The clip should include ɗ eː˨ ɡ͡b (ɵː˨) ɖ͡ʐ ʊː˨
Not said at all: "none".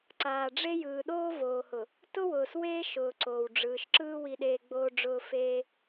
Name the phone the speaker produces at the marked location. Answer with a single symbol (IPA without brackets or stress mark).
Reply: oː˨